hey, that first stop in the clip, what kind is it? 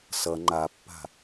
click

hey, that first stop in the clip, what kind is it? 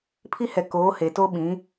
aspirated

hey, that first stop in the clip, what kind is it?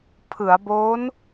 aspirated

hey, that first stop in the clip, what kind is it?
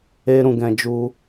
plain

